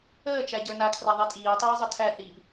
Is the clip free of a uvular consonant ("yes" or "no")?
yes